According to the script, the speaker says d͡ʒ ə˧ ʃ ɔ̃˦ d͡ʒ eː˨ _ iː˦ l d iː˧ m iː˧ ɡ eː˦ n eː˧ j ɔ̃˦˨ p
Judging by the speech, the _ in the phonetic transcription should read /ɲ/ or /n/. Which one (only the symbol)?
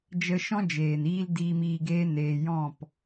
n